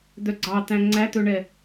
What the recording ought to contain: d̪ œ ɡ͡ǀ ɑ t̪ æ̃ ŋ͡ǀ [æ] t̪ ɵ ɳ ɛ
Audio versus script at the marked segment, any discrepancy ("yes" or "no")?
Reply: no